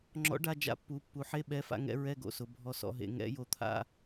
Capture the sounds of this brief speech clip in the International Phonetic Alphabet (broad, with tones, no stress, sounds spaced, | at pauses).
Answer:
ŋ͡ǁ ɔ̰˨˥ ɖ a˧ d͡ʒ a̰˧ pː u˩˧ pː u˩˧ ħ e˧˥˧ ɓ ɛ˨˥ f a̰˧ ŋ ɛ̰˧ ɹ ɛ˧˥˧ ɡ o̰˧ s ʊ˩˧ bʱ ɔ˧ s ɔ̰˧ ɦ ḛ˩˧ ŋ ɛ̰˨˥ j o˧ t̪ʰ a̰˧˥˧